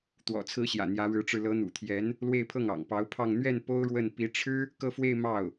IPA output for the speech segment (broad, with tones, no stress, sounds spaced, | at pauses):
t̪ w ɔ̰˨˩ t͡sʰ ɹ̩˧˥ ɕ j ä̰˨˩ n̪ j ä˧˥ ɻ ɻ̩˧˥ ʈ͡ʂ ɻ̩˧ l ɤ˧˥ n̪ ṵ˨˩ t̪ʰ j ɛ˧˥ n | l w e˥˧ ɪ̯ pʰ ɤ˥˩ ŋ ɑ̰˨˩ ŋ p ɑ˧˥ ʊ̯ pʰ ɑ˥˧ ŋ n̪ ɥ ɛ˥˩ n p o˥ ʊ̯ ɻ w ə˥˩ n p i˧˥ ʈ͡ʂʰ ɻ̩˥ | k ɤ˥˧ f w e˥˧ ɪ̯ m ɑ˥˩ ʊ̯